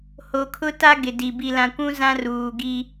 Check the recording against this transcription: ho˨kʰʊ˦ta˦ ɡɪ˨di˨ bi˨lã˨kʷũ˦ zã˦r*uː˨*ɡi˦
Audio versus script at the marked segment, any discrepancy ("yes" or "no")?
no